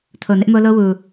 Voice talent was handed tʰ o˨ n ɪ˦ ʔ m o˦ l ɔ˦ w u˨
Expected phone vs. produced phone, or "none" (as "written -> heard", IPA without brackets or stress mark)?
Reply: ɔ˦ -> o˦